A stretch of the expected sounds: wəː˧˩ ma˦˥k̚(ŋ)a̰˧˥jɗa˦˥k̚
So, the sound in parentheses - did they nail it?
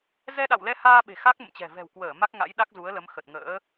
yes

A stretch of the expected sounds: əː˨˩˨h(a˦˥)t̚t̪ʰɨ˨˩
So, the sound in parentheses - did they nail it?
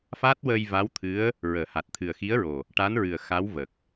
no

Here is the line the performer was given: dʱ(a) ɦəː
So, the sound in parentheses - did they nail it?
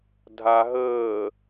yes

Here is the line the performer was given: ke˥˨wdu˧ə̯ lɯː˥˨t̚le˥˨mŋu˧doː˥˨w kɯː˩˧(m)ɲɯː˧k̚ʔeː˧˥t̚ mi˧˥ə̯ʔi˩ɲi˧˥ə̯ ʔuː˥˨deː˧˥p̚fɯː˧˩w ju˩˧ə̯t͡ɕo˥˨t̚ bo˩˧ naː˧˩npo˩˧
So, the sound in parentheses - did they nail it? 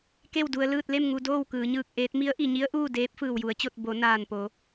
no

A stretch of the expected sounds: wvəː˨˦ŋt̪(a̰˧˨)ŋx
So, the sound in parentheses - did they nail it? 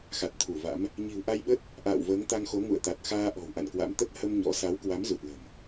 no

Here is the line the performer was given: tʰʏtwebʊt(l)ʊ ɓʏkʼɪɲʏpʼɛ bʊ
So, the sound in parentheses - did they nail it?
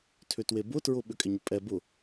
no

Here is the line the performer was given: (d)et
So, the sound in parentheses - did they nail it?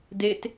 yes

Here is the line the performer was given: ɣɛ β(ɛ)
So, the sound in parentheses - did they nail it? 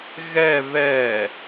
yes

